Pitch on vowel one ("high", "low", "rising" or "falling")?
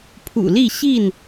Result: low